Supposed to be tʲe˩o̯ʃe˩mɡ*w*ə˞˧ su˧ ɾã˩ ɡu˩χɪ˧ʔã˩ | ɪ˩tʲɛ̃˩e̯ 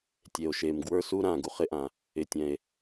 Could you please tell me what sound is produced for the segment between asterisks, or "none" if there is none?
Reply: w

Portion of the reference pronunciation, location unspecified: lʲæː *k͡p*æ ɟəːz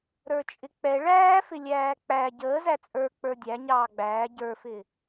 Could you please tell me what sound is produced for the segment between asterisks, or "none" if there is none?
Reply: k͡p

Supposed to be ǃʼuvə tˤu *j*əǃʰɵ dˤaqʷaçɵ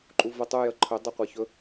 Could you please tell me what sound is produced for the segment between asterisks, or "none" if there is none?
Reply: j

